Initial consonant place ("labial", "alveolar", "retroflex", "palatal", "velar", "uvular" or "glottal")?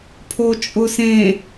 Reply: labial